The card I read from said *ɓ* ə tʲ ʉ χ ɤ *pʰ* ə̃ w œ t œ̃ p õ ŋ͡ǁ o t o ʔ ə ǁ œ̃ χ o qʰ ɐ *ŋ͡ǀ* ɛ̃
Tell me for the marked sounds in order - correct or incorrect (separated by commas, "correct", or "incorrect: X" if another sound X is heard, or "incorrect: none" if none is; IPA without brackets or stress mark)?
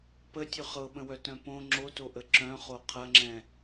incorrect: p, incorrect: ɓ, incorrect: ŋ͡ǁ